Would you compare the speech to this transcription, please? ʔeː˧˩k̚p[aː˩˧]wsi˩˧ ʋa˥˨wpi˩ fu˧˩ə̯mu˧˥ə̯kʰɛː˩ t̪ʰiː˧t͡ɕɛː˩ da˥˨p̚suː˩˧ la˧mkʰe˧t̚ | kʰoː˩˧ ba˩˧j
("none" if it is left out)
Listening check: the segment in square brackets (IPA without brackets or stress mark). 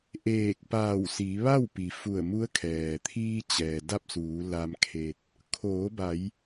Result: aː˧˩